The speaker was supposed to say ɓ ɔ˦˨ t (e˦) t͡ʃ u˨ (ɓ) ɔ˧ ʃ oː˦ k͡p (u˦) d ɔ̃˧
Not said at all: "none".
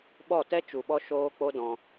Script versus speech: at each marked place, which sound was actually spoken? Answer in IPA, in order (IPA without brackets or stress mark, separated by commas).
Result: ɛ˦, ɓ, o˦